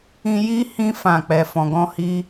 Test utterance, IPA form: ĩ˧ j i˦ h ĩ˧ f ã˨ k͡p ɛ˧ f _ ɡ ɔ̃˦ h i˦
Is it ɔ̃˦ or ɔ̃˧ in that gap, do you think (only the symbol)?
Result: ɔ̃˧